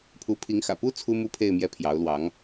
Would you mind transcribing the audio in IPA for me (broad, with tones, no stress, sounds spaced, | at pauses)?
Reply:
pʰ u˧˥ pʰ i˧˥ ŋ x ä̰˨˩ p u˥ t͡sʰ u˥ m u˥˧ pʰ e˥˧ ɪ̯ m j ɛ˥˩ pʰ j ɑ˧˥ ʊ̯ l w ɑ˧˥ ŋ